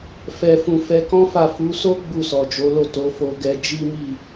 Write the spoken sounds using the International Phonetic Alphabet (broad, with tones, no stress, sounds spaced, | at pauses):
f ɛ˧ f ũ˧ f ɛ˧ k ɔ̃˦ f a˦˨ f u˨˦ s o˦ ɡ͡b u˦˨ s ɔ˨ d͡ʒ o˨˦ l o˦˨ t o˨˦ f o˧ ɡ ɛ˧ d͡ʒ i˦ m i˦˨